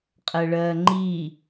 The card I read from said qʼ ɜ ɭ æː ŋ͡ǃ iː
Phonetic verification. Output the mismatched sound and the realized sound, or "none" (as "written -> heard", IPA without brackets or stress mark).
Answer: æː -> ɜː